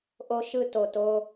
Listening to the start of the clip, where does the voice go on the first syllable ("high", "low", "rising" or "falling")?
high